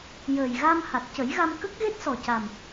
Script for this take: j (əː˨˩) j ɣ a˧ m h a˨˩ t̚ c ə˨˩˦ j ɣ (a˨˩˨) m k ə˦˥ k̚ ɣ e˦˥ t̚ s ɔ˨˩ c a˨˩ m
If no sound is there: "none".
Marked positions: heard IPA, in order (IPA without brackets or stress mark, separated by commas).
əː˨˩, a˧